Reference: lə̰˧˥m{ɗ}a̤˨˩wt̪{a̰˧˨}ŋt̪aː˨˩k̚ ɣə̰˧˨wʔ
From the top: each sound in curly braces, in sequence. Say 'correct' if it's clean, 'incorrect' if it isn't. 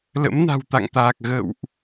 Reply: incorrect: n, correct

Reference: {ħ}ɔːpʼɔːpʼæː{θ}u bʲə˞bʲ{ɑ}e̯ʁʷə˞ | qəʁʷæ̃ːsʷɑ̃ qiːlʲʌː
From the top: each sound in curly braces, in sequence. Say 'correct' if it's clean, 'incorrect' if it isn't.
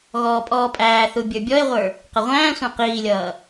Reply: incorrect: ɣ, correct, incorrect: ɔ

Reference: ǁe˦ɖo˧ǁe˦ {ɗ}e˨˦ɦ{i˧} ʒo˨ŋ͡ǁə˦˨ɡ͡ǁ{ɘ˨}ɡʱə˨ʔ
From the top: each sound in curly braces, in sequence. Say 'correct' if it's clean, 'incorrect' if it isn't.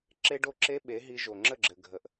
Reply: incorrect: ɓ, correct, correct

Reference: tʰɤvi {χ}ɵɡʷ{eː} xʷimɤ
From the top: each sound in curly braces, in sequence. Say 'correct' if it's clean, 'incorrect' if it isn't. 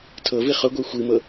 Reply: correct, incorrect: e

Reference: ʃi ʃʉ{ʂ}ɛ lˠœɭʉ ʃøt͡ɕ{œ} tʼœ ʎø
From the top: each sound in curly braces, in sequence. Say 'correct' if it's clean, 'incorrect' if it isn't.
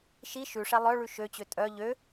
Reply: correct, incorrect: ø

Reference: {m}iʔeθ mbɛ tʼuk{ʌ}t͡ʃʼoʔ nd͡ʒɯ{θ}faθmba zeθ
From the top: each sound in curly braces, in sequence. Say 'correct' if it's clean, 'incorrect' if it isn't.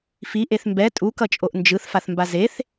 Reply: incorrect: f, correct, correct

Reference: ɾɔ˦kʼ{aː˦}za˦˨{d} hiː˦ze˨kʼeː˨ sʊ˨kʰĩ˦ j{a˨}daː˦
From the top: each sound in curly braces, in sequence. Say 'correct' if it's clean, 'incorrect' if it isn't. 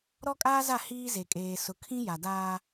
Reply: correct, incorrect: none, correct

